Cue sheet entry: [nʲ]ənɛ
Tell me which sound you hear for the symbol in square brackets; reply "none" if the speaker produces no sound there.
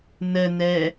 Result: n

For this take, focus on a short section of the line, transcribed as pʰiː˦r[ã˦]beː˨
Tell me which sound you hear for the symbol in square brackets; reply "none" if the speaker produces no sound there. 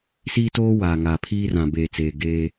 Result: ã˨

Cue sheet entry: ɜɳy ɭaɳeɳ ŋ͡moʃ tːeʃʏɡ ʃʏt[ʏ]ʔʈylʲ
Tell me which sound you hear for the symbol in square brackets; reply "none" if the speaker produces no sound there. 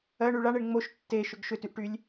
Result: y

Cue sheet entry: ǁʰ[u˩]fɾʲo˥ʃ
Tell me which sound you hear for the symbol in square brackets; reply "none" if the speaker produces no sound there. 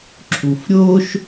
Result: u˩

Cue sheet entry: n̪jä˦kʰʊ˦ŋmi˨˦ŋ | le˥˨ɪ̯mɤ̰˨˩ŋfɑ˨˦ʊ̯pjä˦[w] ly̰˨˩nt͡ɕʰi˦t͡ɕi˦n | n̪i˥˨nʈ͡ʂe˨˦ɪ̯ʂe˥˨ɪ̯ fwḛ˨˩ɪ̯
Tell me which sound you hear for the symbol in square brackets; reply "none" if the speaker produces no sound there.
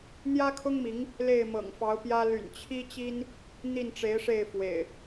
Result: none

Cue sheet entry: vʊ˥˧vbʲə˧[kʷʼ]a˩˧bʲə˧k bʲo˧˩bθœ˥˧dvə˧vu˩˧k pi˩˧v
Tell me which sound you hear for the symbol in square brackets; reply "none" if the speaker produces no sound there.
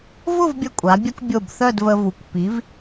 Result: kʷʼ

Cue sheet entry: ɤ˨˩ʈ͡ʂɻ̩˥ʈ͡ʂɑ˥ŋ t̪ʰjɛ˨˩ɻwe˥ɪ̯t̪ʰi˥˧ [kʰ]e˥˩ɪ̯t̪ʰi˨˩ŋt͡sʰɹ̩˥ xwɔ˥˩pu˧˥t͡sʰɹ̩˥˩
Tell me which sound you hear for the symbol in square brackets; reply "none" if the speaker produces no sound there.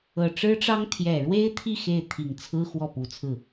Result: x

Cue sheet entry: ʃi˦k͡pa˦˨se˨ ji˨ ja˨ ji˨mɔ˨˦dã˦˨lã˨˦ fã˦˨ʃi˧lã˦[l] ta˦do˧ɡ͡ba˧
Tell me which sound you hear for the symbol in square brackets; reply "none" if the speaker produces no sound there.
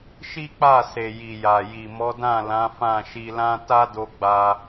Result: none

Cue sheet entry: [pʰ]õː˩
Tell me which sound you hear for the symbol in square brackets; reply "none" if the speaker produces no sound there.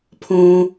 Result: pʰ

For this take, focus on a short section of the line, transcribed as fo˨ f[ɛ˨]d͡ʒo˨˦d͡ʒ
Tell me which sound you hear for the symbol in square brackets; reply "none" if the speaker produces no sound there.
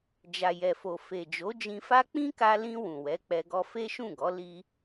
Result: e˨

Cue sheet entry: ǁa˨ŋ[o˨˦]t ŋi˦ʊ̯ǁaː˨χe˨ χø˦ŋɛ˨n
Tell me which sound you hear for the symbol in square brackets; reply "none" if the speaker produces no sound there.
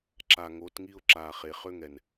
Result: o˨˦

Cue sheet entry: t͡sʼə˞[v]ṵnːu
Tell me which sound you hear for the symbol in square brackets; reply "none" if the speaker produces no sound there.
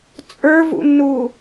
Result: v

